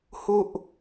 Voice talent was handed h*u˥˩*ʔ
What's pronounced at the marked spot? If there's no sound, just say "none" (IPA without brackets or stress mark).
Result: u˥˩